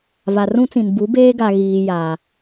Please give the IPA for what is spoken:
v a˨ r ũ˦ t͡s ĩ˨ n b u˨˦ b eː˦ ɡ a˨ ɣ iː˨ j aː˨

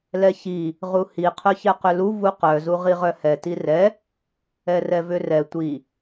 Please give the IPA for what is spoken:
l ɛ ç i | ʁ u h i qʰ œ ç ɛ q ʏ l u v u q œ z u ʁ i ʁ œ h ɛ t i r ɛ | ɛ r ɛ v ʏ r ɛ tʷ i

